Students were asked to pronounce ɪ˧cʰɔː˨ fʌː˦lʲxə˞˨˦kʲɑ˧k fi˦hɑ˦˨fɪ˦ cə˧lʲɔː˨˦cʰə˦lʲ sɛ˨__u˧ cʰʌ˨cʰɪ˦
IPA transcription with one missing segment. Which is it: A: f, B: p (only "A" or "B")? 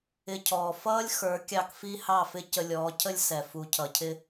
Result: A